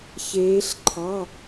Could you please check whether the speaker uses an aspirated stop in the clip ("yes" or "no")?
yes